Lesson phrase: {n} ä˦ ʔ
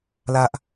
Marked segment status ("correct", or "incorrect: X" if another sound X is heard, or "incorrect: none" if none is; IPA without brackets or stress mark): incorrect: l